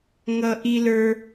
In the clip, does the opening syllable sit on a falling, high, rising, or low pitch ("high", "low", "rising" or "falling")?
high